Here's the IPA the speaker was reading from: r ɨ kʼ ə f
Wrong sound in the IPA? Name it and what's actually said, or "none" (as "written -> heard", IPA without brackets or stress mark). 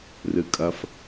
ə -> ɐ